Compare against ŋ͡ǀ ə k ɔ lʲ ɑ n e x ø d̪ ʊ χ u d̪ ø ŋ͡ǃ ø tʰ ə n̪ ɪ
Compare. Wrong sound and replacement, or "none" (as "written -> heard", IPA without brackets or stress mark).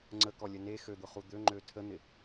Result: ɑ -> ə